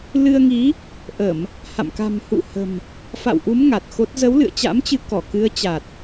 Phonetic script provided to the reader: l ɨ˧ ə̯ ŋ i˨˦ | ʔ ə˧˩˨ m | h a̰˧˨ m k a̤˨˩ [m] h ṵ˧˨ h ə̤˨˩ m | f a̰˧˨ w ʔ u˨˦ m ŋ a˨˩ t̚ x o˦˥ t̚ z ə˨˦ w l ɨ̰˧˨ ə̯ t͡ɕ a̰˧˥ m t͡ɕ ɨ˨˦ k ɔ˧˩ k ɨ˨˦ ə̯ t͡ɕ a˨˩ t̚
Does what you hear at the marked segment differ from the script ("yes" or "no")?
no